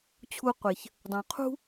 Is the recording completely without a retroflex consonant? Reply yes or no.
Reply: yes